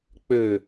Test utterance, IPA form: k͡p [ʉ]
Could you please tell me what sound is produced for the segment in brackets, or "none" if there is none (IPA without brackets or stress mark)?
ø